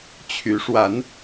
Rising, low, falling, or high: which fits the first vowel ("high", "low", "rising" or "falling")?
rising